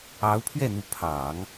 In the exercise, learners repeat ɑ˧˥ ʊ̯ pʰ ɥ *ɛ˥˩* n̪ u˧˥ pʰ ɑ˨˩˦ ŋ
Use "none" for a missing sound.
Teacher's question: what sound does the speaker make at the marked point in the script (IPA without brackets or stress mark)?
ɛ˥˩